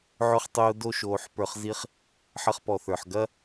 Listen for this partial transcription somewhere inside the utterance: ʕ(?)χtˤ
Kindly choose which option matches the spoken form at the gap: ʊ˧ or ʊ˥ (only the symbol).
ʊ˧